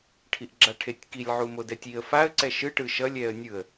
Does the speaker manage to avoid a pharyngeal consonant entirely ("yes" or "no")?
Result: no